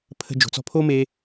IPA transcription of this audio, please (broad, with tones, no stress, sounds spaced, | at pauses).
pʰ ə̤˧ d͡ʒ o̤˨ t͡s ɔ̤˧ pʰ o˦ m e˦